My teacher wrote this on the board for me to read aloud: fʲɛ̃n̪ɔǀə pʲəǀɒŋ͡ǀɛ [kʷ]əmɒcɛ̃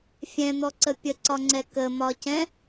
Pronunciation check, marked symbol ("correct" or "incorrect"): incorrect